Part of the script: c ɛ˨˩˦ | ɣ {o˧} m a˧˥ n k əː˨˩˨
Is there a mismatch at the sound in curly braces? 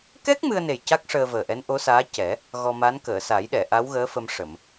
yes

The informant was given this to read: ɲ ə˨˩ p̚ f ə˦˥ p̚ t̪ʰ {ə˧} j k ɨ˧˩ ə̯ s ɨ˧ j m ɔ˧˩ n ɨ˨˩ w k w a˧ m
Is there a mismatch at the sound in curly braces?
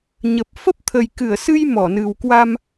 yes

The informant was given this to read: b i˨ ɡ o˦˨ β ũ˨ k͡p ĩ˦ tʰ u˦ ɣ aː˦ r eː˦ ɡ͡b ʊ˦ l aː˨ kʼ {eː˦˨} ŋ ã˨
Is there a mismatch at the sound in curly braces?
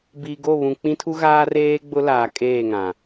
no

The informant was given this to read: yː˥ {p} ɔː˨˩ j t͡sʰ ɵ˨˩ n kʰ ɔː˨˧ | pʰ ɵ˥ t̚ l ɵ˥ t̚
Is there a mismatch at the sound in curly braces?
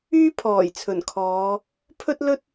yes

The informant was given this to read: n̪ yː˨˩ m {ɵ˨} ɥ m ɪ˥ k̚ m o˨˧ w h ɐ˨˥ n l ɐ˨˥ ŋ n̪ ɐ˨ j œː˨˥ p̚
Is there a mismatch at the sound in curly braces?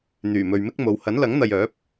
no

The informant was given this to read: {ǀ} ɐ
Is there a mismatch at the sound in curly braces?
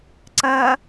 no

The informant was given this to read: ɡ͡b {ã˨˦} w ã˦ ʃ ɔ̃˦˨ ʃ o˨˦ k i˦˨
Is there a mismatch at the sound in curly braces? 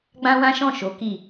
yes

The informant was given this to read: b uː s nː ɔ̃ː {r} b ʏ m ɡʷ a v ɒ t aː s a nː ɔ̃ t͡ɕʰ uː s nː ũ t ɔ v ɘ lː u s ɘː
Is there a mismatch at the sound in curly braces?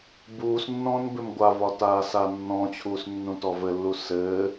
yes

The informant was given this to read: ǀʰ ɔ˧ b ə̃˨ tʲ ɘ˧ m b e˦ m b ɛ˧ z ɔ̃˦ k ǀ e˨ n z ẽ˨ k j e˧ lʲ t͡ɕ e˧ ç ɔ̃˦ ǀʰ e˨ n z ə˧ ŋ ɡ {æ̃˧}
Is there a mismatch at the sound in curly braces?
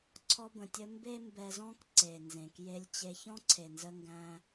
no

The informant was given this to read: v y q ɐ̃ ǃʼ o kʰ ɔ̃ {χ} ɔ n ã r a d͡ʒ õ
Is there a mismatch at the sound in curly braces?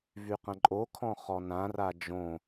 no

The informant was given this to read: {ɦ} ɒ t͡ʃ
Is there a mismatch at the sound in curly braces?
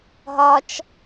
no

